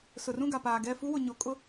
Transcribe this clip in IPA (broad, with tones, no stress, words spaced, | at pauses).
sʊ˨rũ˦˨ ɡa˨paː˨ɡɛ˦˨ fu˦wʊ˨ɲo˨ kʼʊ˦